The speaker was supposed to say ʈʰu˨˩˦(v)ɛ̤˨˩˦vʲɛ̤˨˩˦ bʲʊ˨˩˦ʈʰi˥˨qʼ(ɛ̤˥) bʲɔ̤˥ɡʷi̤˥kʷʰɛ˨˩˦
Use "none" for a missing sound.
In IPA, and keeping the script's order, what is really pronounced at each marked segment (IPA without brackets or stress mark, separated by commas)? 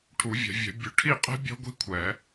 vʲ, ɛ̤˥